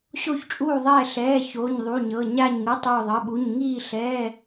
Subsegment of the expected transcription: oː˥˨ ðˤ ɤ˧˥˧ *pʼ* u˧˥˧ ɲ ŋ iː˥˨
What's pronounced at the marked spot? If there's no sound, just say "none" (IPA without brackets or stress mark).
ɓ